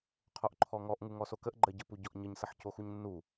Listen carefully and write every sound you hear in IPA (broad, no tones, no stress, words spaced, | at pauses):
qʰoʔǃʰɔŋɔʔŋu ŋɔsokəʔ ɡ͡ǃɜɟəpu ɟɔʔɲəɲsəħ coxuɲnːu